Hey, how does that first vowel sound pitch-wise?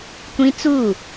high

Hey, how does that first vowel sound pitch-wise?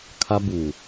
high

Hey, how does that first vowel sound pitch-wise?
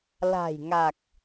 low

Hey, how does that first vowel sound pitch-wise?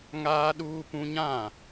high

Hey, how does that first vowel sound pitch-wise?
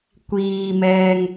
low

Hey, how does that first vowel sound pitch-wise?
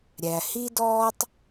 low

